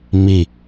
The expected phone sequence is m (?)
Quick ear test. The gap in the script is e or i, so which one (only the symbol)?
i